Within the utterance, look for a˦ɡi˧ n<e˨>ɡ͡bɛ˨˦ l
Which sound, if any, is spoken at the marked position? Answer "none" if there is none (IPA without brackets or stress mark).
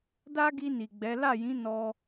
i˨